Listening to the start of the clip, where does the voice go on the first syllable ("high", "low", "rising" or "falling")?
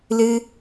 high